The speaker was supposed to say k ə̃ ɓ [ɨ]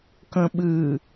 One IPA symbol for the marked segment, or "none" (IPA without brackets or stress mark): ɨ